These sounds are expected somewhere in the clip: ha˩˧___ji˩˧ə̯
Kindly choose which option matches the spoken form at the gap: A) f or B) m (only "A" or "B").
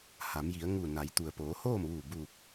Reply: B